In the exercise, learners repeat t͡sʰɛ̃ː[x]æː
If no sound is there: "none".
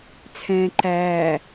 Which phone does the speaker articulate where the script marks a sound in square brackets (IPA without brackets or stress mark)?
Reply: ǃ